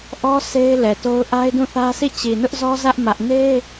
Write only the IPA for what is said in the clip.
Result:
ʔ ɔ˦ sʰ e˦ ɪ̯ l ɛ˨ t o˦ ʊ̯ ʔ a˦ ɪ̯ d ũ˦˨ θ ä˦ s i˦˨ t͡ɕ i˨ n ʊ˦ ʔ z ɔ˦ z ä˦ ʔ m ä˦ ʔ n e˦

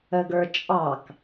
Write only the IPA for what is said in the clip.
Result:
ə ɡ ə˞ t͡ʃʼ ɑ k

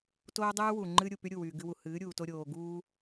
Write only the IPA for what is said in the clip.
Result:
t oː˦ dˤ ɨː˦ w u˨ ŋ͡ǃ ɨː˦ ɾʲ u˨ p y˦ ɾʲ u˦˨ w yː˨ ɡ ɨ˧ w u˨ h ɨː˨˦ ɾʲ uː˨ t o˧ ɾʲ oː˨ ɡ uː˦

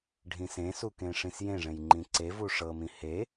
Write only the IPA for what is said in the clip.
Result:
ɖʱ ĩ s ẽ s u k ẽ ʂ ĩ s j ẽ ʐ ẽ j ŋ͡ǃ ĩ ǀ e v u ʂ ɤ m ĩ h e

